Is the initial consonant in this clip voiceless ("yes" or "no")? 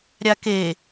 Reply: no